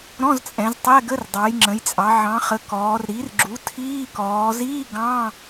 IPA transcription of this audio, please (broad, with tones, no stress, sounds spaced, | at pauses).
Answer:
ɾ ɔ̃˧˥˧ z t͡sʼ ɛ̃˩˧ z tˤ ɛ˧˥˧ ɡ ə˧˥˧ r dˤ ɑ˩˧ j ŋ͡ǁ ə̃˩˧ j t͡sʼ ɑ˩˧ ʕ ɑ̃˩˧ χ ə˩˧ k ɔː˩˧ r ɾ i˩˥ r ɡ͡ǁ u˩˥ tʰ iː˧˥˧ k ɔː˩˧ z iː˧˥˧ ɡ ɑ̃˧˥˧